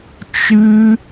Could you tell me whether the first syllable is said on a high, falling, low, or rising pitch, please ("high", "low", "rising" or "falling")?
high